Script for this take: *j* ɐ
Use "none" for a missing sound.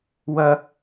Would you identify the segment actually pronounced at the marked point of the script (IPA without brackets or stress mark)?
w